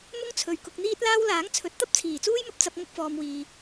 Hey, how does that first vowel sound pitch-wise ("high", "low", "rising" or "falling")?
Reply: high